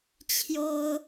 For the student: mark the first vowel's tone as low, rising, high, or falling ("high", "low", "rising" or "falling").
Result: high